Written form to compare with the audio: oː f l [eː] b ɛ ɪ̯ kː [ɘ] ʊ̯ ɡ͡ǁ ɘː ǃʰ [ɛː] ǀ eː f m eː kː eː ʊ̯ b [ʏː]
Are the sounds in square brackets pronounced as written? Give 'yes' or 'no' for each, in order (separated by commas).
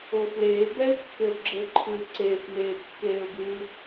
yes, yes, no, no